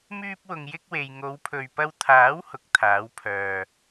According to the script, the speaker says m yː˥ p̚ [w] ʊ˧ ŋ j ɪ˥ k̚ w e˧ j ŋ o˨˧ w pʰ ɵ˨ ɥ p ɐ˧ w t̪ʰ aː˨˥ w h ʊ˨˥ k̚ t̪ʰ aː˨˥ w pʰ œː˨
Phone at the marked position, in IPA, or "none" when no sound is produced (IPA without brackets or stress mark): w